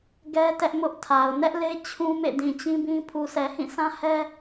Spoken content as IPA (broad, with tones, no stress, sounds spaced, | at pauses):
ɡ ɛ˦ t ɛ˦ ʔ m ʊ˦ ʔ tʰ a˨ ʊ̯ n ɛ˦ ʔ l e˦ t͡ɕʰ ũ˦ m ḛ˦˨ d ĩ˨ t͡ɕ ĩ˦ b ĩ˦ pʰ u˨ sʰ ɛ˨ h ĩ˦˨ sʰ ã˦ h ɛ˦